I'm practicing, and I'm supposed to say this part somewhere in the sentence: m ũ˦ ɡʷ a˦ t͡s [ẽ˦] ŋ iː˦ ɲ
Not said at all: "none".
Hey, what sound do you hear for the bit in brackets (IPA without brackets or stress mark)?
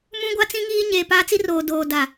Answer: ĩ˦